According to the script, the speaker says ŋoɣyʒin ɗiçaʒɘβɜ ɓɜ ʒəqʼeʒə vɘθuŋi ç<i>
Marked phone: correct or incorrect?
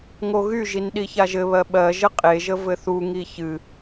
incorrect: ɨ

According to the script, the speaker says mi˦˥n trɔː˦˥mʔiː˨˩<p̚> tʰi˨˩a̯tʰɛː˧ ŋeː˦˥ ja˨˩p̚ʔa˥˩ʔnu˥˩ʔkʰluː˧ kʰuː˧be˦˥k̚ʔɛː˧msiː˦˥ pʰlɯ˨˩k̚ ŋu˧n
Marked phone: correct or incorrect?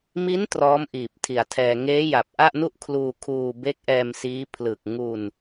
correct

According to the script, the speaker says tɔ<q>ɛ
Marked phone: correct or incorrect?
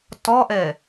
incorrect: ʔ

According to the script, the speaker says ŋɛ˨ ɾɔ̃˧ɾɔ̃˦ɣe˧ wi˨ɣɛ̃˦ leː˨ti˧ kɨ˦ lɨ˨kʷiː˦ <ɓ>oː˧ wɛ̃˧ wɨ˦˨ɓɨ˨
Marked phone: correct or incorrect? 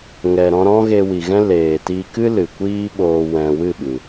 correct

